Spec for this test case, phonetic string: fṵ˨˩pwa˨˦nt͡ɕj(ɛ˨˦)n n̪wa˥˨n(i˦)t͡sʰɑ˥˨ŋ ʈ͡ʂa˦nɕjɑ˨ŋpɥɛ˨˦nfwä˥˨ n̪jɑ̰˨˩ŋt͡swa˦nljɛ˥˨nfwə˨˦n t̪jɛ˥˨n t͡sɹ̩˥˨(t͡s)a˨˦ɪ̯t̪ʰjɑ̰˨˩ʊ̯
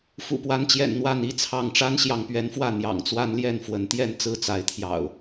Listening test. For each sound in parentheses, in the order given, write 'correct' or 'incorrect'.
incorrect: ɛ̰˨˩, correct, correct

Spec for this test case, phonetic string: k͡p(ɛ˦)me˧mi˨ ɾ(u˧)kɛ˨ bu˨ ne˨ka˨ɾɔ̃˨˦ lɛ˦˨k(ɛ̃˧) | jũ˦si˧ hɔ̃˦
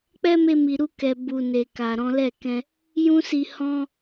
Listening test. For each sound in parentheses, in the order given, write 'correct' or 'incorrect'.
correct, correct, correct

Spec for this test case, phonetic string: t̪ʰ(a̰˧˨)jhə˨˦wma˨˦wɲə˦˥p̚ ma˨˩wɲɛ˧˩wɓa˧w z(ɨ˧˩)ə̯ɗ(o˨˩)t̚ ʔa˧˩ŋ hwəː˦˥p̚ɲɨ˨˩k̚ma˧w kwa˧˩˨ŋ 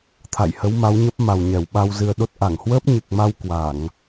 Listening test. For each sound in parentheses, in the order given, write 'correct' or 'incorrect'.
correct, incorrect: ɨ˧, incorrect: o˦˥

